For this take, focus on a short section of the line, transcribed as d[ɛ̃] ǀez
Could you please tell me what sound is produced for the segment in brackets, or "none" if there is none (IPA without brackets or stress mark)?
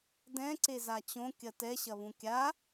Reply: ɛ̃